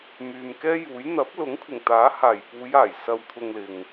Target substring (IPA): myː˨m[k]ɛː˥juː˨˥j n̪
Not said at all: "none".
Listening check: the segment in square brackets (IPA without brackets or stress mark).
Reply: k